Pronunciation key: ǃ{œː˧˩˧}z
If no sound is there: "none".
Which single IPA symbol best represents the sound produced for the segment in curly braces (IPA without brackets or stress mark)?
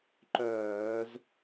œː˧˩˧